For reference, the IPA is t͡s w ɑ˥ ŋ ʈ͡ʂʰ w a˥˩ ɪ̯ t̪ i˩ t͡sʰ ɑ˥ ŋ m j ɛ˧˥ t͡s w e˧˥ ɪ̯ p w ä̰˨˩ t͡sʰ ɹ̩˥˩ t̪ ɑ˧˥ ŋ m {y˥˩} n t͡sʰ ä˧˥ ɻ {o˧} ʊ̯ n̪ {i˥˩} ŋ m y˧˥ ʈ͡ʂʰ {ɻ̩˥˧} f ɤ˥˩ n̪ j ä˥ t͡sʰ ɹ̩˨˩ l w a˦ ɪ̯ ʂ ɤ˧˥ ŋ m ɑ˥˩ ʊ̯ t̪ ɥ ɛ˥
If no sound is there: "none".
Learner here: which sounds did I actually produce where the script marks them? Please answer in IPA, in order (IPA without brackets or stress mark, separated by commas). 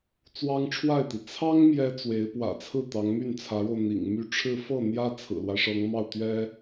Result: y˥˩, o˧, ḭ˨˩, ɻ̩˥˧